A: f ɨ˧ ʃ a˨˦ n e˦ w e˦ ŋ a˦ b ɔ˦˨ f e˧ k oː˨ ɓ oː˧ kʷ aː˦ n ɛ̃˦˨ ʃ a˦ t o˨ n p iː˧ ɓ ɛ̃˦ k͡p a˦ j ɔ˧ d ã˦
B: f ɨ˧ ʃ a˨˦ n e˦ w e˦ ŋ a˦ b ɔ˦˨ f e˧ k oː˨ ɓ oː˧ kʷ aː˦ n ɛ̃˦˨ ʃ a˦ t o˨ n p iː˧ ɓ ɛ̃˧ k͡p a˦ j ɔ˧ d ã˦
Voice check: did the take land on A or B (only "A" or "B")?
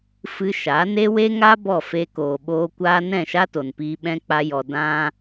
A